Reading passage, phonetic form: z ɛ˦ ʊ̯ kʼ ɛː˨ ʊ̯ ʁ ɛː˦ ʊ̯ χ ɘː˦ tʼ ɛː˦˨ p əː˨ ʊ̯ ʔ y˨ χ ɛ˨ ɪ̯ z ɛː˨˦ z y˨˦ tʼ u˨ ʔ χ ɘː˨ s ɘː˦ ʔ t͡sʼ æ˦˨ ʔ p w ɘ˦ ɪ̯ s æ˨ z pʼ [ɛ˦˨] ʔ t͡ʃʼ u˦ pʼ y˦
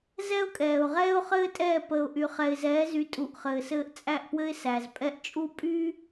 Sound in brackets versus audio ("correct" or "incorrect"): correct